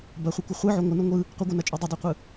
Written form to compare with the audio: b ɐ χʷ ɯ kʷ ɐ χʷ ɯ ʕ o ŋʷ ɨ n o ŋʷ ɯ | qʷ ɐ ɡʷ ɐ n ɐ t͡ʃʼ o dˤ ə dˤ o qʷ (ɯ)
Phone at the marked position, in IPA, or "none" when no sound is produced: ɯ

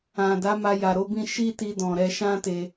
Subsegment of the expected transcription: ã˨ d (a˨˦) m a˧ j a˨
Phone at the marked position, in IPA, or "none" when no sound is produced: a˨˦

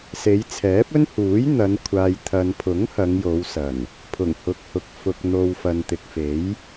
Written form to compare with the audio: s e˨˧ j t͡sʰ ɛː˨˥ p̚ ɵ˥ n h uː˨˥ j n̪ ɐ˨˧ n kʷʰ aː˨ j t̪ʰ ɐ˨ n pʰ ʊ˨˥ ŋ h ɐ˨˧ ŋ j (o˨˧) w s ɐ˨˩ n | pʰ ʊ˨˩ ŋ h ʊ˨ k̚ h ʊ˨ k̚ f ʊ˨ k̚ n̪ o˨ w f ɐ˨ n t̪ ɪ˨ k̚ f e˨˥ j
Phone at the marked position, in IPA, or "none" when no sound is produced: o˨˧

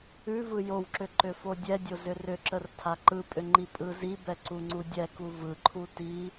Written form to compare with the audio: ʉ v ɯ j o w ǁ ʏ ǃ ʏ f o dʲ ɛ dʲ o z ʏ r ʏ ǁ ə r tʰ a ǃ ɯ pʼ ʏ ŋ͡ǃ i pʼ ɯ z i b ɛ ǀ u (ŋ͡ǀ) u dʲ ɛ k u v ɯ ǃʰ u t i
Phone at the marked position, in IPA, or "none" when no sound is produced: ŋ͡ǀ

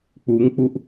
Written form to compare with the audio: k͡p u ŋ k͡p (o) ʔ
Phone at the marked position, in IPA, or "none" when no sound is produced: u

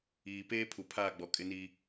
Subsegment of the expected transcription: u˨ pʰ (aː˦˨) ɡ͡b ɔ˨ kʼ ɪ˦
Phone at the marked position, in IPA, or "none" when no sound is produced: aː˦˨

